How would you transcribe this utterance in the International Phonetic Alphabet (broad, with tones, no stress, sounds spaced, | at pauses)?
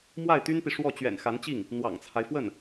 m w a˥˩ ɪ̯ t̪ y˥ n p i˨ ʂ w ɔ˥˩ t͡ɕ ɥ ɛ̰˨˩ n x a˧˥ n t͡ɕ i˥˩ ŋ | n̪ w ɑ̰˨˩ ŋ t͡sʰ a˦ ɪ̯ f w ə˥˩ n